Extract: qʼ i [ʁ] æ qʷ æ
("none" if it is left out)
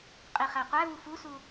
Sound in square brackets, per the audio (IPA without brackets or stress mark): χ